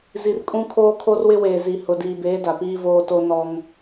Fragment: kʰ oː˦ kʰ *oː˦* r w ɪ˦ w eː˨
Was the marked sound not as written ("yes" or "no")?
yes